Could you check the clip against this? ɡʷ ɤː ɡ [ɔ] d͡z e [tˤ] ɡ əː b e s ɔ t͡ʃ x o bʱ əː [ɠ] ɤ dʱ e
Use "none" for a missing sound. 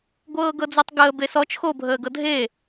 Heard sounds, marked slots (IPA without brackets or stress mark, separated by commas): ɤ, tˤ, ɡ